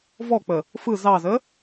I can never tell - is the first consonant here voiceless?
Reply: no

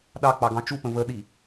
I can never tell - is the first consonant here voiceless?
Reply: no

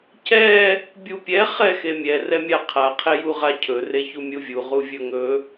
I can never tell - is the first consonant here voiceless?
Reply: yes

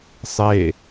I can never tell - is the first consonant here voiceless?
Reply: yes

